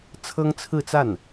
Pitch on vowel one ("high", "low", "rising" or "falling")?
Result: high